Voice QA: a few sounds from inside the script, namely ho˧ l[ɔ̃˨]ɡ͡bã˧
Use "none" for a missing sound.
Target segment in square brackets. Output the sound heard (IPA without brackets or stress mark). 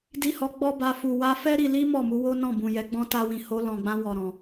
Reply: ɔ̃˨